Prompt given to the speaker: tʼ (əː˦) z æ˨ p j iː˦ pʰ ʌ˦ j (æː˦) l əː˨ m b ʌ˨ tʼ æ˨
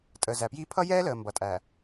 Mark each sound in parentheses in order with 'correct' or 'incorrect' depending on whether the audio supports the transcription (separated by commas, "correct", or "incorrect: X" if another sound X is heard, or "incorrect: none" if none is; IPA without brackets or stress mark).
incorrect: əː˨, incorrect: ɛː˦